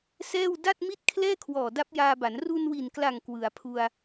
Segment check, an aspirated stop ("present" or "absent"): present